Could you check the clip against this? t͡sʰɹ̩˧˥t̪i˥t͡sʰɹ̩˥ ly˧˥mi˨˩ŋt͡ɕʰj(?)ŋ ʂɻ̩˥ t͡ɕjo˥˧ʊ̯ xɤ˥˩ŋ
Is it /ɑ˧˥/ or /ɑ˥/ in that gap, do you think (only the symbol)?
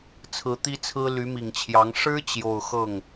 ɑ˧˥